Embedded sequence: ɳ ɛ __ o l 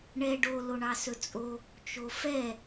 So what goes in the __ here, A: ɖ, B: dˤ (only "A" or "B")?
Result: A